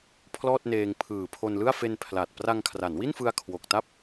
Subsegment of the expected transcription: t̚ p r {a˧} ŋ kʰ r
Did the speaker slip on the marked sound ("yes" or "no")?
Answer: no